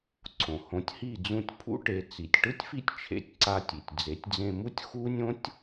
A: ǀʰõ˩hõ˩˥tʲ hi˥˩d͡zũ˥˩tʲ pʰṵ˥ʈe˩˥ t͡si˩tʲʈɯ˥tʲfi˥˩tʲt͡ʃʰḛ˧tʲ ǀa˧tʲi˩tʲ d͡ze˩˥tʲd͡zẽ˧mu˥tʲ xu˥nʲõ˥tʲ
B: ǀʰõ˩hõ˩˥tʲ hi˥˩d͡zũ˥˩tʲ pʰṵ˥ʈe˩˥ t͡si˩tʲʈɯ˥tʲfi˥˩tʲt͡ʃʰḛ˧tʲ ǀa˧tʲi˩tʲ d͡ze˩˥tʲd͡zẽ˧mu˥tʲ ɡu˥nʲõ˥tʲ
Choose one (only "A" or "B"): A